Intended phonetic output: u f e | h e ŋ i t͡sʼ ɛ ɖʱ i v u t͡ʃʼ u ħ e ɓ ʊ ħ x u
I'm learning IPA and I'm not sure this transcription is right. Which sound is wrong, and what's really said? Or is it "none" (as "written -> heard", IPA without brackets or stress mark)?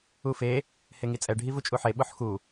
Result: none